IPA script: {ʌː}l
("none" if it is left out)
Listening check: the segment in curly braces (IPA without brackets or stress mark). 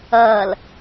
ʌː